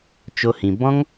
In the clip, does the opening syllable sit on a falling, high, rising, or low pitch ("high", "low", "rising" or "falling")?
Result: high